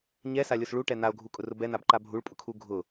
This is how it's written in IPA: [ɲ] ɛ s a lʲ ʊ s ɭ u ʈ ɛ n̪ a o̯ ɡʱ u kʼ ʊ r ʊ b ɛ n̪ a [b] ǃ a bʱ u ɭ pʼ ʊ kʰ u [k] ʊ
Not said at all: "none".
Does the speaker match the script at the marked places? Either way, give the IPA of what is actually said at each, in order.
ɲ, b, ɡʱ

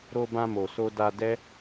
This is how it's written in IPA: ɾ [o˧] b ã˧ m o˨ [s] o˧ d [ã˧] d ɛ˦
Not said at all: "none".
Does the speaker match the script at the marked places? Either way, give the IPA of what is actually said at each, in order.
o˧, s, a˧

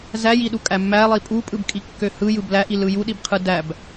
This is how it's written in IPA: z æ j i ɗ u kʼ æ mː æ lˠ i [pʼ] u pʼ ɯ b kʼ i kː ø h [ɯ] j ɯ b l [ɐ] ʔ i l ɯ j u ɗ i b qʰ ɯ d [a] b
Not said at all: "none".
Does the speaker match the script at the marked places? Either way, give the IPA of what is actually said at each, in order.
pʼ, ɯ, æ, æ

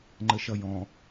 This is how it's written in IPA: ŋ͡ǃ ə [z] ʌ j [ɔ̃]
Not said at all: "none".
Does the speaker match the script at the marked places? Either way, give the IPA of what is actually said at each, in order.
ʃ, ɔ̃

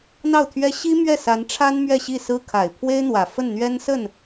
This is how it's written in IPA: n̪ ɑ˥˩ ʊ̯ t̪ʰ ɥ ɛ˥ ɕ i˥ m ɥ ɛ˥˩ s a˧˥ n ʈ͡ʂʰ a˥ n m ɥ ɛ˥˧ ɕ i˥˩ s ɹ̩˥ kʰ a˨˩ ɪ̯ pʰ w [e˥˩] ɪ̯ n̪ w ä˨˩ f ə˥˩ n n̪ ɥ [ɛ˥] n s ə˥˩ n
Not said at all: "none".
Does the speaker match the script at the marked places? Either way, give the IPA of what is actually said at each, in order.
e˥, ɛ˥

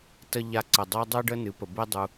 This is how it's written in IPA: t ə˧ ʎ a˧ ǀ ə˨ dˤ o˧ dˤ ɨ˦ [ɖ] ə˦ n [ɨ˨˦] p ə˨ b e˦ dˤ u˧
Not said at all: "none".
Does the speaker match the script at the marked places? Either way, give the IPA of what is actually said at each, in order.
ɖ, ɨ˨˦

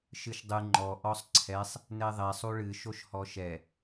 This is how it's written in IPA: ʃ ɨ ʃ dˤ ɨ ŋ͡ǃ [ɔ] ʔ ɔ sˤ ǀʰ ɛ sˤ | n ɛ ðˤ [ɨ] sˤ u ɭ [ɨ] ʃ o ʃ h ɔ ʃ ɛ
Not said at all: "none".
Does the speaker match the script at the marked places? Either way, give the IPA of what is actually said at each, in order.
ɔ, ɛ, ɨ

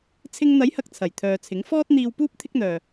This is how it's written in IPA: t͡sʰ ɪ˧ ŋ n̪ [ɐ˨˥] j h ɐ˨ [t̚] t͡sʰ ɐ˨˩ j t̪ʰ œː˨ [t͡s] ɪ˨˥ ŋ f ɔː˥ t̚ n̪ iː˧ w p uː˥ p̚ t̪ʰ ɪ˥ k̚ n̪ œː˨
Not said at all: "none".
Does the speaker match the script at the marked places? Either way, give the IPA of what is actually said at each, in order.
ɐ˨˥, k̚, t͡sʰ

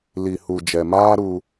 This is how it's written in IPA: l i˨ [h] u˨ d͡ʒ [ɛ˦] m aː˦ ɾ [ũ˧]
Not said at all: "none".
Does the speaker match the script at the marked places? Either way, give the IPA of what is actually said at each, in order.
h, ɛ˨, u˧

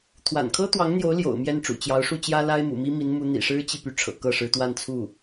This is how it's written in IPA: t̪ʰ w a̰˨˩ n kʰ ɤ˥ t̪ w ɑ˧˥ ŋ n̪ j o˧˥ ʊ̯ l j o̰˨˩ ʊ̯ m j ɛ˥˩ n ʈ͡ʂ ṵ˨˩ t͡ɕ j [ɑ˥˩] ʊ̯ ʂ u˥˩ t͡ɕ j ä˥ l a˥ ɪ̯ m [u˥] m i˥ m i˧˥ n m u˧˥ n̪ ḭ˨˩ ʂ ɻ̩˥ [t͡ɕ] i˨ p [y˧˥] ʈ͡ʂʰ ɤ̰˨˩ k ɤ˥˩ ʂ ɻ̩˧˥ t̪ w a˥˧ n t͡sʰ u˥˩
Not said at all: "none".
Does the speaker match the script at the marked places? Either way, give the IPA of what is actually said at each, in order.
ɑ˧˥, ṵ˨˩, t͡ɕ, y˥˩

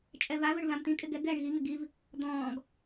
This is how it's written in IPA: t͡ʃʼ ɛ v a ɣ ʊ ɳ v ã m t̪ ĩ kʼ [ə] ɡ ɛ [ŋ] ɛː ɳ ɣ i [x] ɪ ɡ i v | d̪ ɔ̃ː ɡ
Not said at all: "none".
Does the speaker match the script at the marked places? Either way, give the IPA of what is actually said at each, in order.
ɪ, ɡ, ŋ

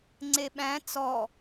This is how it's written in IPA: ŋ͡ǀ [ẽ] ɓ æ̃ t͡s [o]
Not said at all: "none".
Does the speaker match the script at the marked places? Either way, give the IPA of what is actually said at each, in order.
e, ɔ

